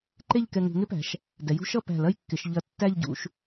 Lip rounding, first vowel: unrounded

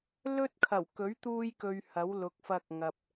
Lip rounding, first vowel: rounded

